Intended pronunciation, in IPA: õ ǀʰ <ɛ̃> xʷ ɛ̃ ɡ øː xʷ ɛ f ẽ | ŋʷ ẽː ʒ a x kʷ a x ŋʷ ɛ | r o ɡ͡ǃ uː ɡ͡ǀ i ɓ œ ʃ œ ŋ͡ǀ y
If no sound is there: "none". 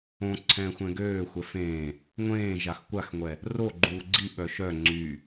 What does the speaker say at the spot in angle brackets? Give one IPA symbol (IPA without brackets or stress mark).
ɛ̃ː